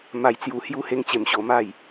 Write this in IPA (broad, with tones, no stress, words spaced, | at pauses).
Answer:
ma˧jt͡sju˧ hju˦he˦ŋ t͡ɕe˧mɕo˧ma˥˧j